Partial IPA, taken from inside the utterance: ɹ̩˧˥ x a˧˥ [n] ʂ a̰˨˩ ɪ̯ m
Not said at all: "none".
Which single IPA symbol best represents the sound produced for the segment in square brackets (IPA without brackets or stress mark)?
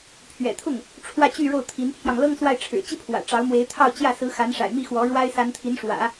n